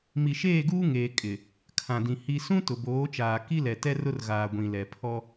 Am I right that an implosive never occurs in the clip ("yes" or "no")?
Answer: yes